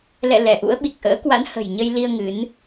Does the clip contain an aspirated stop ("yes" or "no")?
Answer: no